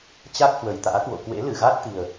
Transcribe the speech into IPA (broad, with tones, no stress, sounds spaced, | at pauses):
t͡ɕ a˦˥ k̚ h w ə˨˩ j t̪ a̰ː˧˥ k w o̰˧˨ k w ḛ˧˥ l ɨ˧˩ ɣ a˦˥ t̚ t̪ i˨˩ ə̯